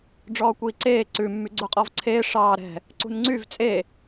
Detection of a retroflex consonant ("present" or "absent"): present